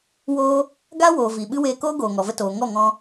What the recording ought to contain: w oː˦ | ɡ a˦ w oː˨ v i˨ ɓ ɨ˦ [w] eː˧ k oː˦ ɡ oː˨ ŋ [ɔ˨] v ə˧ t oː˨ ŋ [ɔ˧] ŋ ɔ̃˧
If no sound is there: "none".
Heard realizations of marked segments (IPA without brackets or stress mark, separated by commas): w, ɔ˨, ɔ˦˨